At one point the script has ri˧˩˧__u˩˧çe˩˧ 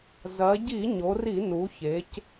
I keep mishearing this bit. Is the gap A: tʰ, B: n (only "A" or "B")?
B